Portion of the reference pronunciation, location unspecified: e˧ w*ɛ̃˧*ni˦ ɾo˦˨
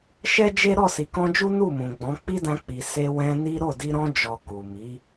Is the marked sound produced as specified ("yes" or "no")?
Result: yes